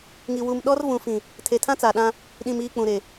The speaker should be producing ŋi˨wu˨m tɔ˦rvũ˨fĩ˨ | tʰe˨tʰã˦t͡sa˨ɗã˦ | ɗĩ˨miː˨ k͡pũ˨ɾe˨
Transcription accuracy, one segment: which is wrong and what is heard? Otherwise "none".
t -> ɗ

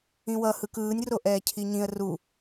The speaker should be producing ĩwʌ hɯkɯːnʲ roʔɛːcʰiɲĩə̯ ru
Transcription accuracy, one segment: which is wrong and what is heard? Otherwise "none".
none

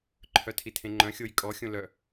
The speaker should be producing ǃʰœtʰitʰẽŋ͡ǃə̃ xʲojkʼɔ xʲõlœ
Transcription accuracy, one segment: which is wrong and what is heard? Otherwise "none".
ə̃ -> œ̃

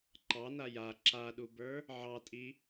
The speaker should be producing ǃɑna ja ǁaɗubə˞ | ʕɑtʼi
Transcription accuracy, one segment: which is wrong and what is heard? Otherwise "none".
none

